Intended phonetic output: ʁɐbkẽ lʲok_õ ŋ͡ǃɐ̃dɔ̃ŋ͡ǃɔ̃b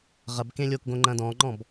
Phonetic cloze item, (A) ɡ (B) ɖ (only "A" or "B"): A